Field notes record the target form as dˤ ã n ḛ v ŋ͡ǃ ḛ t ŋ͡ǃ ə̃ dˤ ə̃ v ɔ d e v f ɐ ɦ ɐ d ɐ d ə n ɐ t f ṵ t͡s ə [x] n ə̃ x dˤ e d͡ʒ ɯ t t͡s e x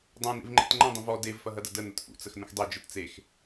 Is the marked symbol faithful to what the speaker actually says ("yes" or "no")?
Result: yes